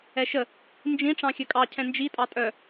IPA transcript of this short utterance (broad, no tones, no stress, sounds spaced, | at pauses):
ɛ ʃ ə | n d͡ʒ ĩ ʈ͡ʂ ɑ̃ xʲ œ kʼ ɑ cʰ ɛ̃ n d͡ʒ i tʼ ɑ tʼ œ